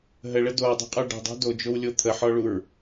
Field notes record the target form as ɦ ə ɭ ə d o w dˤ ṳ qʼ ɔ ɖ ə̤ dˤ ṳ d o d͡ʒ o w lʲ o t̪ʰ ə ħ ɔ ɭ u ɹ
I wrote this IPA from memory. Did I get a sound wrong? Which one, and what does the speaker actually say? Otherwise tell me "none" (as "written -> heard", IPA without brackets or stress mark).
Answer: none